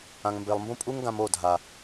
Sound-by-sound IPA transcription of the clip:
ã˨ ŋ m b e˨ lˠ m b ũ˦ pʼ u˦ ŋ ɡ ã˧ m o˦˨ dʱ a˨

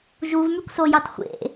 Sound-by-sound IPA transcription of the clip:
ʒ u v m y kʷ s o j ɑ t xʷ ḛ

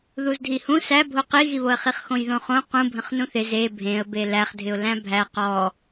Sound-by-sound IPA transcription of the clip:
ð u z dʱ i h ũ s æ bʱ o q i ɣ i β o ə̯ χ i χ x õ j ð õ χ õ q ũ bʱ ə̃ χ n ũ θ ɪ z e bʱ ẽ ə̯ b e l æ χ dʱ ɪ ʊ̯ l æ̃ bʱ æ q ɔ

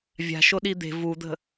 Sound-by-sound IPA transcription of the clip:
vʲ a̤ ʃ o ɗ i d̪ e̤ v u d̪ ə̤

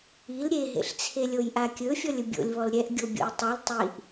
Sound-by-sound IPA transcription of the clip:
i l ɾʲ e ɦ ḛ ɬ t͡sʰ e lʲ o j ʔ a kʲ ɵ fʲ ɔ lʲ ɵ bʲ o̰ lʲ β ɔ l ɾʲ ɛ ʔ ɡʲ o bʲ o̰ j tˤ o l tˤ i ʔ

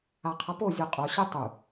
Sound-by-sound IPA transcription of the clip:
a qʰ ʌ p o zʲ o qʼ o ɕ e tˤ u

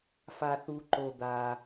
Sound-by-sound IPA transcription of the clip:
f a˩ θ u˩ ǃ o˩ d̪ a˩

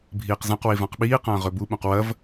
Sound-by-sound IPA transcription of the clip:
bʱ iː q z ɐ̃ q w i v ã q ɓ iː q ɐ̃ː ʁ ɵ b u ɓ ũ q w ɐ v

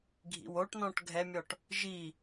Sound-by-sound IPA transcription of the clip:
ɡʱ ḭ w o ʈ n ɔ̃ ʈ ɡʱ ɛ mʲ ɔ ʈ | ʒ i

